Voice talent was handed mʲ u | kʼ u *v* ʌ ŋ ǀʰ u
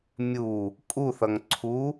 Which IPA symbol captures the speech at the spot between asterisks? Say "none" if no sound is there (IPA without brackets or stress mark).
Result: θ